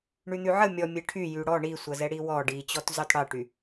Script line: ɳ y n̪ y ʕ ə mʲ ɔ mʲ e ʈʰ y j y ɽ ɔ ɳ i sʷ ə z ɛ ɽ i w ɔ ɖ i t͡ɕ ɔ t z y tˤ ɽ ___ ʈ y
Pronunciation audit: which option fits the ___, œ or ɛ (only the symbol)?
ɛ